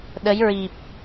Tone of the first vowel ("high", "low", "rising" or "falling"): rising